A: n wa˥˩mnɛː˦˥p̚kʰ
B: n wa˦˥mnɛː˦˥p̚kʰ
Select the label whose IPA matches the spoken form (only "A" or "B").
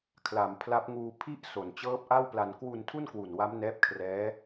B